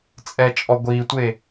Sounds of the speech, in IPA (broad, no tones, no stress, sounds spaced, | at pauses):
t͡sʼ ɛ t͡ʃʼ ɔ ɡʷ iː tʷ e